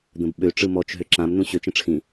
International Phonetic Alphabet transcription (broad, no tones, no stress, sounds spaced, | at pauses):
d̪ ə̃ b ɓ ø ʈ͡ʂ ɯ m ɔ t͡ʃ ɦ ø ǁ ã m n ũ ɕ ø t͡ʃ ə̃ ʈ͡ʂʰ ĩ